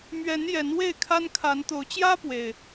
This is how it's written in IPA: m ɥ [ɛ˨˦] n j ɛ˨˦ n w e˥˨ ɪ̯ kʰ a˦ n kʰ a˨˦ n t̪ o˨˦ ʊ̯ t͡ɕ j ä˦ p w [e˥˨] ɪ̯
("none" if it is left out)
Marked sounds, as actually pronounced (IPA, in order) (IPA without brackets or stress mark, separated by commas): ɛ˨˦, e˨˩